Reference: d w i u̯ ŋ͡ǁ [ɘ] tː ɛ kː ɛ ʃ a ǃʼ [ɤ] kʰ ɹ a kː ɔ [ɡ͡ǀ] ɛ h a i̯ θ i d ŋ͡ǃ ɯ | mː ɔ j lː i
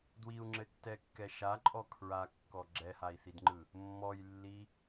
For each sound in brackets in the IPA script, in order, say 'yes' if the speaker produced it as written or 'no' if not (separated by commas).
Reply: yes, no, no